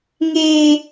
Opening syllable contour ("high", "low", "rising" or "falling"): high